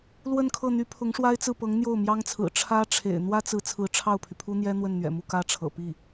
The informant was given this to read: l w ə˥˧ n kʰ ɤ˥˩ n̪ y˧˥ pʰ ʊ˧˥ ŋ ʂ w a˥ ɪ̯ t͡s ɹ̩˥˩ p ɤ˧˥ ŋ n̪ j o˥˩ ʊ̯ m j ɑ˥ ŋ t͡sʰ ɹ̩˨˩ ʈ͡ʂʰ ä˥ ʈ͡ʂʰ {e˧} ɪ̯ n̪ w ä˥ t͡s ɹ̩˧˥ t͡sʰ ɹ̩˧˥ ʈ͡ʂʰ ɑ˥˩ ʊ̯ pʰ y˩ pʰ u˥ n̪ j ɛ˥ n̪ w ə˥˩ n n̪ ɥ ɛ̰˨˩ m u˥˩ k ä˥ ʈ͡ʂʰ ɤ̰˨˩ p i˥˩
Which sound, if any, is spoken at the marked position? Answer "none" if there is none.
ḛ˨˩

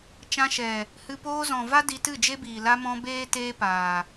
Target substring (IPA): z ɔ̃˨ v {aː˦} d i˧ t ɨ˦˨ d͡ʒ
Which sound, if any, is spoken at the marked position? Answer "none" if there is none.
a˦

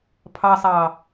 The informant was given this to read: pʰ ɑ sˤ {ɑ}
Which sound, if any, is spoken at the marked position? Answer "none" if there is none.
ɑ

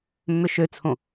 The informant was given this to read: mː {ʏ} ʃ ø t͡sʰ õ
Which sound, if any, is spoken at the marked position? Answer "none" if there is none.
ʏ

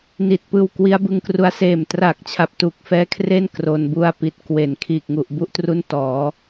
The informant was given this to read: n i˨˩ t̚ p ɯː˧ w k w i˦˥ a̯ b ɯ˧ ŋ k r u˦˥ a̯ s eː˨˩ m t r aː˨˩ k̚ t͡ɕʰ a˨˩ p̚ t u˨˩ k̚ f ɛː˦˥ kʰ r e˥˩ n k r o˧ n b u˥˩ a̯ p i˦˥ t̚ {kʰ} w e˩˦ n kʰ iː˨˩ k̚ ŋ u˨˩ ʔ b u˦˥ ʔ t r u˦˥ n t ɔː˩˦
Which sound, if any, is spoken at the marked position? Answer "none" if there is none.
k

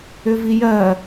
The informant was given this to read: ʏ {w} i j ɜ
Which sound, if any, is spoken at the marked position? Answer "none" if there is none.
v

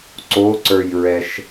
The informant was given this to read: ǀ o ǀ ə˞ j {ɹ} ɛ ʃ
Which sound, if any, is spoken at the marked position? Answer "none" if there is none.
ɹ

